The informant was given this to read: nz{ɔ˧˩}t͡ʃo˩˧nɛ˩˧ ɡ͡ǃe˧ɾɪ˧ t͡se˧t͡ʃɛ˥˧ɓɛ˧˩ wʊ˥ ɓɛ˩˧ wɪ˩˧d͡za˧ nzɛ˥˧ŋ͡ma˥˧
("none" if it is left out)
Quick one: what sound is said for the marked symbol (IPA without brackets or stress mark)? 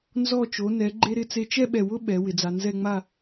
ɔ˧˩